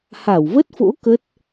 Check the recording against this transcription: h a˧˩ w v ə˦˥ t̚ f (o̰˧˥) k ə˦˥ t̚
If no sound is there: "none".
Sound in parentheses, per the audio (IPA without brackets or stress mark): o̰˧˥